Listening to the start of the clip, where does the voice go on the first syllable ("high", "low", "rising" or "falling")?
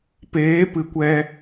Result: rising